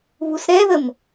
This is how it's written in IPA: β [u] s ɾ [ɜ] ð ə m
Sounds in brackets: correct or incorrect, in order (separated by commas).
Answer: correct, incorrect